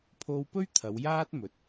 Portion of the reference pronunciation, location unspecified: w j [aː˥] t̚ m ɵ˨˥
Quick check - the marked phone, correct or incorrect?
correct